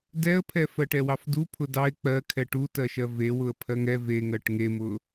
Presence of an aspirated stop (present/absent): present